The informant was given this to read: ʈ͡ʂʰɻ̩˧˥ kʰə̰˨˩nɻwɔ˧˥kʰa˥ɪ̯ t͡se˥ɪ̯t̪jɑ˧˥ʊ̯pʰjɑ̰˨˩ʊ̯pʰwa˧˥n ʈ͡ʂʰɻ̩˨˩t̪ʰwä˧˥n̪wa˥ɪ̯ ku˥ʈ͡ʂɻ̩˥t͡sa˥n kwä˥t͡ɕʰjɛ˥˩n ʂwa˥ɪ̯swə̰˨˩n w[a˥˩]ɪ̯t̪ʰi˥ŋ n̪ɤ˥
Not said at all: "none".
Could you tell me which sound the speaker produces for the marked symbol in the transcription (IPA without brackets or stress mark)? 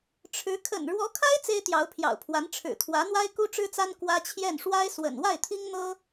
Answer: a˥˩